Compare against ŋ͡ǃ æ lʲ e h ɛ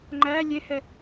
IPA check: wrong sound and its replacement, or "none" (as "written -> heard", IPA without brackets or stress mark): none